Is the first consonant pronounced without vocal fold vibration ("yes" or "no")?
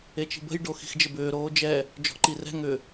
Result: yes